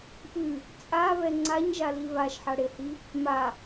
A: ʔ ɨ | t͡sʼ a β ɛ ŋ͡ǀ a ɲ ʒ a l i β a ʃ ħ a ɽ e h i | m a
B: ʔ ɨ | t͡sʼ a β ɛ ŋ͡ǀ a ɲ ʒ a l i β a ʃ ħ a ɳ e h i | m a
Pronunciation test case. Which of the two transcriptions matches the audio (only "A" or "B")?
A